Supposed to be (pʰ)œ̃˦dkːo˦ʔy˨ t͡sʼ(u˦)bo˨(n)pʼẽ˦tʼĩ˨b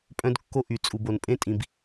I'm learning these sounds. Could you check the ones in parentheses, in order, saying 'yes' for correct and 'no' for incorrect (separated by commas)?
no, no, yes